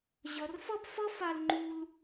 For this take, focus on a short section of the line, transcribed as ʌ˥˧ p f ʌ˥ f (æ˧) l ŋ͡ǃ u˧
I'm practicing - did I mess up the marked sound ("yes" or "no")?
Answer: yes